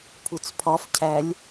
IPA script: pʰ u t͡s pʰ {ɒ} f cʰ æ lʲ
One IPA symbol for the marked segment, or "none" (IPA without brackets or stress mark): ɒ